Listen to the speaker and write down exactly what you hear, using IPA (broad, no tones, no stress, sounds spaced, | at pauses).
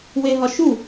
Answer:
w e ɦ ɒ ʃ u